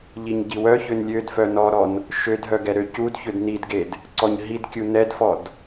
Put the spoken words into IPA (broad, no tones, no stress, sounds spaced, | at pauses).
ʎ i ɲ ɟ i w œ ç ø n lʲ ø d f œ n ɔ ɾ ɔ n | ʃ ø d ɦ œ ɡ ɛ ɾ ø c u d ç ø d n i d ɡ e d | ǀ ɔ ɲ ɦ i d kʲ u n ɛ d f ɔ d